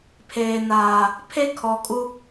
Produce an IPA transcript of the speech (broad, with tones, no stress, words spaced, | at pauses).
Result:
pʰeː˨naː˨ | pʰe˦kʰɔ˨kʼu˦